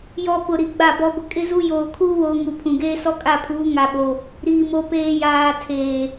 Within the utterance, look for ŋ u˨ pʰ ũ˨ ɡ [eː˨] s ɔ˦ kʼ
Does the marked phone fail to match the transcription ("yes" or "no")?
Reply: yes